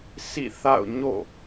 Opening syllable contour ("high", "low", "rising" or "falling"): falling